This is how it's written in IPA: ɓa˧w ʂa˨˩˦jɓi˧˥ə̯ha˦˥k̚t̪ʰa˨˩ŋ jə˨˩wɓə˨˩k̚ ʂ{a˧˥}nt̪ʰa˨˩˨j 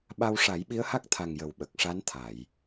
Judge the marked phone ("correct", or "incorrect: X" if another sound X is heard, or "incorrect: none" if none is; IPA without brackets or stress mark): correct